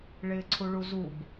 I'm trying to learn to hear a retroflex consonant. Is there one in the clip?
yes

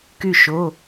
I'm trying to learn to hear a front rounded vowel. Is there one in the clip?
yes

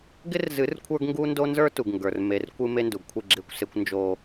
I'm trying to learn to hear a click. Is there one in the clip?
yes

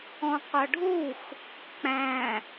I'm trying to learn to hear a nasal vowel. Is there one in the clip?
yes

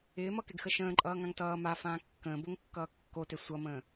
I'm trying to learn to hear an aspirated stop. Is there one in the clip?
no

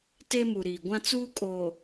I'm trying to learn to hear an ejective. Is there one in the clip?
yes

